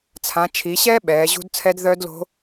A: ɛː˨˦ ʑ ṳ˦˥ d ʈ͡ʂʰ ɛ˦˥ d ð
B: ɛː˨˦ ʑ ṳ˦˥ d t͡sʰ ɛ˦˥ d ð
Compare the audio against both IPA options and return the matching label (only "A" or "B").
B